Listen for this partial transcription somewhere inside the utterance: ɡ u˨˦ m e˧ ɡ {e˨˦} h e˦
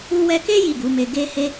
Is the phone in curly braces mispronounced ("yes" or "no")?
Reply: yes